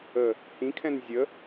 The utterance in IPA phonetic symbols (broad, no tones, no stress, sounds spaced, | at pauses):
ə | h ĩ kʰ ɛ̃ n zʲ ə